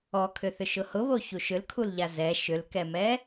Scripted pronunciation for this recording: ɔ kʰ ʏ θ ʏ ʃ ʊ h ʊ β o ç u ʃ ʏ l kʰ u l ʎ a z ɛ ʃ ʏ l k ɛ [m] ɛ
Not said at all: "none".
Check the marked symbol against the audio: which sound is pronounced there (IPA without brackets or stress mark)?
m